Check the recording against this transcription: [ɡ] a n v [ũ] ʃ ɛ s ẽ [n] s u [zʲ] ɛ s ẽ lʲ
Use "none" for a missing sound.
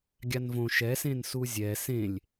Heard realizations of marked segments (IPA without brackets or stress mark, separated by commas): ɡʲ, õ, n, zʲ